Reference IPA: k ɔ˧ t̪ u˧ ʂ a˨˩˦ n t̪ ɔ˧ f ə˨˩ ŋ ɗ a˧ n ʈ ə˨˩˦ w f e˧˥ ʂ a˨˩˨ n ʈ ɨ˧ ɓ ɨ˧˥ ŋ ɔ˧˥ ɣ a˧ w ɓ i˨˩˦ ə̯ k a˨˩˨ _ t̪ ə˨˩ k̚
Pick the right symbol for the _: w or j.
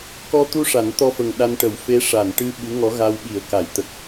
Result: j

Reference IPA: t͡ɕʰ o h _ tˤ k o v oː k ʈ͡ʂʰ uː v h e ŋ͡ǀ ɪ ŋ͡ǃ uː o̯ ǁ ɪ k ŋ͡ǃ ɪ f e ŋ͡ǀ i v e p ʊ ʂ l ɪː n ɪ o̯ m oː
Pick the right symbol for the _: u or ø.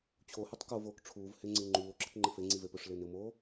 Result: u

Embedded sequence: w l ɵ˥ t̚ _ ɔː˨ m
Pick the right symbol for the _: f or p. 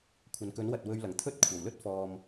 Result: f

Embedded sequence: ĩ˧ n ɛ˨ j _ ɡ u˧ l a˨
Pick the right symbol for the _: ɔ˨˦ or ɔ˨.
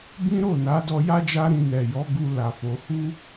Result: ɔ˨˦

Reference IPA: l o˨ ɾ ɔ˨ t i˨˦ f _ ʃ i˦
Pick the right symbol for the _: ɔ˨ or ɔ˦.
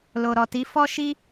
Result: ɔ˦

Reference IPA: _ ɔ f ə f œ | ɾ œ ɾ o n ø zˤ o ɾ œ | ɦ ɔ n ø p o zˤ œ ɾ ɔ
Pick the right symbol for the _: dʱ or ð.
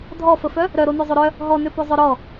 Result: dʱ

